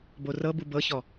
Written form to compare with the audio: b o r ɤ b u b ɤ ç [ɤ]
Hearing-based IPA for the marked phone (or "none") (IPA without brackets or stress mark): ɔ